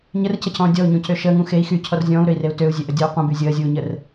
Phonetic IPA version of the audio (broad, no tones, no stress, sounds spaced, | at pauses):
ɲ ə r c ə cʰ ɔ̃ː dʲ ɔ u̯ ɲ ũ c ø ʃ əː ŋ ũ x e i̯ x y cʰ ɔ r zʲ ɔ̃ː u̯ ɾ ø i̯ r e u̯ t ø u̯ zʲ ø ʔ ə dʲ əː u̯ qʷ ə̃ b y zʲ əː zʲ uː ɲ ə r